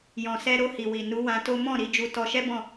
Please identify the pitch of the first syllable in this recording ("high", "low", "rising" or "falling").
low